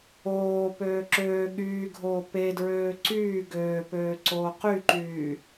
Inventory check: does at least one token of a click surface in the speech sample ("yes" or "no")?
yes